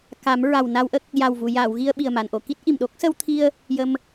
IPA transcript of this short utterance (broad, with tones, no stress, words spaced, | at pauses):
ka˨˩˦m ɹa˨˩wna˧wʔə˦˥k̚ | ja˨˩wvu˨˩˨jaː˨˩˨wɣi˧ə̯ ɓi˨˩ə̯ma˨˩˨nʔo˨˩˨ki˦˥t̚ ʔi˨˩mɗo˦˥k̚ sə˧wt̪ʰi˧ə̯ | jə˧m